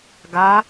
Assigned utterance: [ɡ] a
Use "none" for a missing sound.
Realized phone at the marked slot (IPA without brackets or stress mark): ɡ